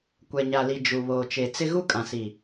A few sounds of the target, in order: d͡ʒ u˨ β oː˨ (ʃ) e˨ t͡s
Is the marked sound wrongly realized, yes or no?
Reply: yes